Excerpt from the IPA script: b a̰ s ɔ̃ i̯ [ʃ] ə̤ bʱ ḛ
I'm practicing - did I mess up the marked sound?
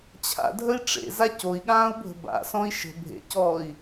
no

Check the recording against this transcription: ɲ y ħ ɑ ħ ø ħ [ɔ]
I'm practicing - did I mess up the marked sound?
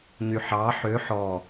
no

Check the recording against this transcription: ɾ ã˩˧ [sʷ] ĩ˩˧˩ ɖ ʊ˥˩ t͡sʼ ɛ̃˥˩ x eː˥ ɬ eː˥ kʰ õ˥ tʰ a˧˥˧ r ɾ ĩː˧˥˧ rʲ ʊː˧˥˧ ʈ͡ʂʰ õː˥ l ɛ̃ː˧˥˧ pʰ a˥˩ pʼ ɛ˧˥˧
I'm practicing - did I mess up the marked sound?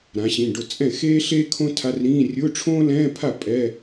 yes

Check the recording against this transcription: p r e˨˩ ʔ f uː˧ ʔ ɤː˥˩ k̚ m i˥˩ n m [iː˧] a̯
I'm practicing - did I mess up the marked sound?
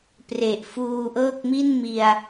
yes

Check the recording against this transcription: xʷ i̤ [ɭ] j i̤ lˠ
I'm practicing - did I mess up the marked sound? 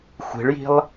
no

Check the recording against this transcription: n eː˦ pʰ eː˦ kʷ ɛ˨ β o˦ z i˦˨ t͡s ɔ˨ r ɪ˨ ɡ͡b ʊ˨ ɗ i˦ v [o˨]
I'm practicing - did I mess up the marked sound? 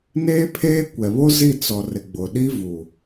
yes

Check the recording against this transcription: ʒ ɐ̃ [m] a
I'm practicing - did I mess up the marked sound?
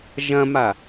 no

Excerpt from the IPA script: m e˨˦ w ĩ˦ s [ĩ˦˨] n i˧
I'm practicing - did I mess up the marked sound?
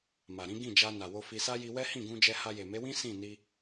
no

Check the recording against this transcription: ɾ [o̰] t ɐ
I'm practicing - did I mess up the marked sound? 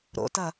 no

